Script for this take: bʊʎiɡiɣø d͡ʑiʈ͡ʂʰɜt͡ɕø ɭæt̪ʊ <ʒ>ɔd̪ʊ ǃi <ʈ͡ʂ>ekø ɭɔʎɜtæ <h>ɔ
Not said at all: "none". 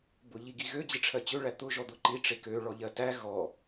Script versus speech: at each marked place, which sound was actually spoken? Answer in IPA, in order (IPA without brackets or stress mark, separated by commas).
ʒ, ʈ͡ʂ, ɣ